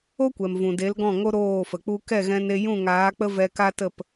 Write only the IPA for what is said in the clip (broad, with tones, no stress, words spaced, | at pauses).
o˦kʷɛ˨m vũ˨de˨˦lɡɔ̃˦˨ŋo˦ ɾoː˦˨fə˨k͡pu˦ kɛ˦˨ɣɛ̃˧ne˧ jũ˦˨ŋaː˨˦k͡pə˦ vɛ˧ka˦ tə˦˨p